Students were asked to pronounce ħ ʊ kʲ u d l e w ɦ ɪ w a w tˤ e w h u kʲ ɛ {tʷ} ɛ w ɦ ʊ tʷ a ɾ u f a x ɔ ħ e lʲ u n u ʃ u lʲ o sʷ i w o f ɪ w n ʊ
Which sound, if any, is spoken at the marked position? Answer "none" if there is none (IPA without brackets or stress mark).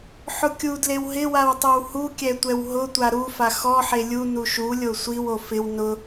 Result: tʷ